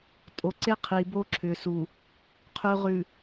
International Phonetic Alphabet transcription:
tʼo˨ǀe˦ qʰi˨bo˦ǁʰʏ˨su˨ | qʰʉ˨ʁʉ˨

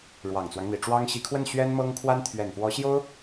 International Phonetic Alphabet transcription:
ɻwɑ˨˩ŋt͡swɑ˦ŋn̪i˨˩ʈ͡ʂwɑ˥ŋ ɕi˧˥kʰwə˥˩n ɕɥɛ˥nmɤ˥ŋkʰwa˥n t̪ʰɥɛ˨˩nfwɔ˧˥ ɕjo˥ʊ̯

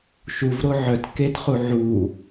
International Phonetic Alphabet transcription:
ʃuvɾo ʕœt ketχu ʕu

